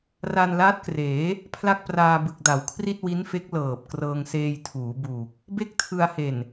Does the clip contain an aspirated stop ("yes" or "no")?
yes